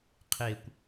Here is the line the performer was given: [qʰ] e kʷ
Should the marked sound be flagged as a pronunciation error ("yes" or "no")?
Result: no